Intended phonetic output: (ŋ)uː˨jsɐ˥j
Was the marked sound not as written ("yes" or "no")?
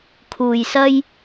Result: yes